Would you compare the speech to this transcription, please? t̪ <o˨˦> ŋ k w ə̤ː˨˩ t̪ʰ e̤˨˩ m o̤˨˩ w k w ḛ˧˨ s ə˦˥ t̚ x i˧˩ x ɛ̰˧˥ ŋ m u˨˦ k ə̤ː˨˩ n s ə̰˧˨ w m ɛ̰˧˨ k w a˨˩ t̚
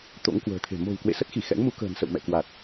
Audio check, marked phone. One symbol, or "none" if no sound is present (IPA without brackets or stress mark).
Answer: o̰˧˥